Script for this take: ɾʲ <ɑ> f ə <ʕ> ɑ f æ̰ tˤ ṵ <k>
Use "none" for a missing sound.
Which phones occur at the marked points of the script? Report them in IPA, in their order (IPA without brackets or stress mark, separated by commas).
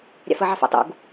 ɑ̰, ʕ, ɡ